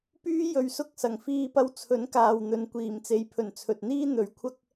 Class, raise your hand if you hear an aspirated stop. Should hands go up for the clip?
yes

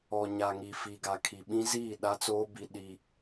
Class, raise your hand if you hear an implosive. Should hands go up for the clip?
yes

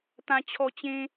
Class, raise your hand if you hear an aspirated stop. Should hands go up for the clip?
yes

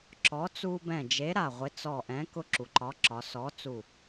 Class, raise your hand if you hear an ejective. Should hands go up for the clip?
no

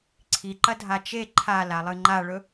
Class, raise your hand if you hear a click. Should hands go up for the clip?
yes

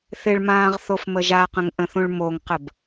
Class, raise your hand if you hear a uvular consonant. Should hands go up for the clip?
yes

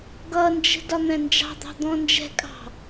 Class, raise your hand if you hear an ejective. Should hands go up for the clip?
yes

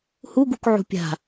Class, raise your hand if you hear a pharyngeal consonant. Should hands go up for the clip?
yes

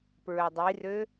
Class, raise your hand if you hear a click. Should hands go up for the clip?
no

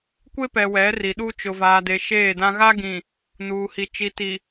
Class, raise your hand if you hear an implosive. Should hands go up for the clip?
yes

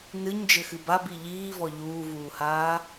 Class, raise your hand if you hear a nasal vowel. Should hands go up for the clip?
no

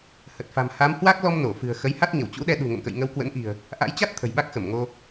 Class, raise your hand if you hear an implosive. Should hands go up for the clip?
yes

